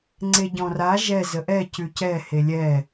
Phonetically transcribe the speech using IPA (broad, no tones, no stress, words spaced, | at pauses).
ŋ͡ǀeɟɔ̃ra ʒɛ zəʔɛ cʉcɛ helʲɛ